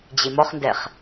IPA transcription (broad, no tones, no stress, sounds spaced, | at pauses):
d͡ʑ i m ɔ χ n d ɛ χ